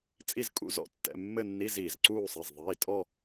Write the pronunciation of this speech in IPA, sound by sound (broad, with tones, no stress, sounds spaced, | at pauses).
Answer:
t͡sʼ i˥˧ z kʼ ṵ˥˧ z ɔ̰˥˧ tː ɛ̰˧˥˧ mː ɘ˥˧ nː i˧˥˧ z iː˩ z ǀ uː˥˧ sˤ i˩˧˩ z ðˤ iː˩˧˩ tʼ ɔ˥˧